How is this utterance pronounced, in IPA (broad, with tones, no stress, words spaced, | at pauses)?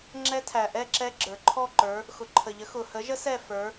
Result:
ŋ͡ǁɛ˦˥tʰæ˩ʔɛ˥˧ǁɛ˦˥ ɡ͡ǁə˞˩ǃʰɔ˥˧ǃə˞˨˦ | xʊ˩ǃʰə˩ʎə˨˦ xʊ˩ hə˨˦ʒə˦˥ sɛ˥˧fə˞˨˦